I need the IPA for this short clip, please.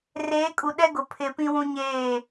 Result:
reː˨˦kʼu˨ ɗɛ˦ɡʊ˨ pʰɪ˨ pĩ˦wũ˦ɲeː˦˨

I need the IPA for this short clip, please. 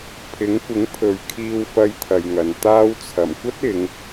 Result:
pʰɪ˨˥ŋkʷɪ˨˥ŋpʰɵ˨˧ɥ kʰiː˧w fɐ˧jt̪ʰɐ˨jŋɐ˨n t̪aː˧wt͡sʰɐ˨˩m kʷɐ˥t̚ɪ˨˧ŋ

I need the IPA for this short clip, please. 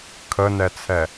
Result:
kʰənɛt͡sʰɛ

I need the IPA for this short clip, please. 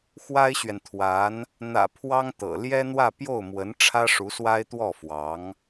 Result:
xwa˥ɪ̯ɕɥɛ˨nt̪ʰwa˧˥n | n̪ä̰˨˩ pʰwɑ˥ŋt̪ɤ̰˨˩ ljɛ˥n̪wä˥˧ pjo˥˩ʊ̯mwə˧˥n ʈ͡ʂʰä˥ʂu˧˥swa˥ɪ̯t̪wɔ˥˩ fwɑ˧˥ŋ

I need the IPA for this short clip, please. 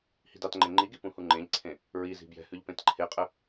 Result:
hi̤dɑtŋ͡ǃẽ ŋ͡ǃiɡi pũhuŋ͡ǃẽʎǀʰẽ | ɹizi̤ bjɛ̤hʉʎ pẽtǃʰeqʼə

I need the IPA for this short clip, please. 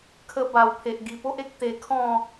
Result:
kʰə˧ba˨˩wpʰe˨ʔ ɡi˨˩po˦ʔe˦k̚ t̪e˧kʰɔ̃˥˧

